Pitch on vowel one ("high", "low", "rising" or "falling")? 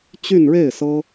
falling